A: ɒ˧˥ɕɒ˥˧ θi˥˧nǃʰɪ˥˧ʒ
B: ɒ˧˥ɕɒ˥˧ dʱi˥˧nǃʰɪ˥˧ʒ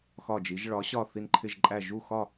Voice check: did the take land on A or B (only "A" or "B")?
A